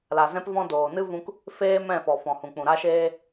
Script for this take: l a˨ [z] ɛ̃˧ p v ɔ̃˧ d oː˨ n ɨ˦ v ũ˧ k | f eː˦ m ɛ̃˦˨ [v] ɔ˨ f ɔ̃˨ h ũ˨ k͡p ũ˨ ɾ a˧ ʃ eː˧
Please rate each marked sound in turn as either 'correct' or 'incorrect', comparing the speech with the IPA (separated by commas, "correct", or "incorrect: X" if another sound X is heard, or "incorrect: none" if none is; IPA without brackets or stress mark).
correct, incorrect: f